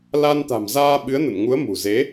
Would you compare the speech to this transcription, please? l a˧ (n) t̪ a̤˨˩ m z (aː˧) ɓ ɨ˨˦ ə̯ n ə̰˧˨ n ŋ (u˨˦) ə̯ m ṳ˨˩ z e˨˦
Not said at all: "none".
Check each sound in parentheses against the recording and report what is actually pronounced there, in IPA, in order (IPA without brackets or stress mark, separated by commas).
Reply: n, aː˧, u˨˦